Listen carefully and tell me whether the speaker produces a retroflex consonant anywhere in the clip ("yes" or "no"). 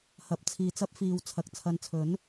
no